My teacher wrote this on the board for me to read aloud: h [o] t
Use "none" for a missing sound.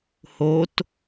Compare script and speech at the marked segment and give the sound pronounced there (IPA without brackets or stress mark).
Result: o